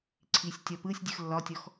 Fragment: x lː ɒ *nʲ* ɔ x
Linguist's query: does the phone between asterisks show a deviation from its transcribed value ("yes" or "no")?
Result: yes